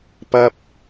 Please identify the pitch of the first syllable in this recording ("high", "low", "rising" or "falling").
high